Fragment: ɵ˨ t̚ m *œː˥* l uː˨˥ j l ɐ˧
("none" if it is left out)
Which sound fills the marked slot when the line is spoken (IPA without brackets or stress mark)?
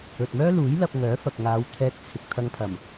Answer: œː˥